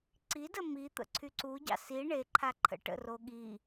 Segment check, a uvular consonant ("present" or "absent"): absent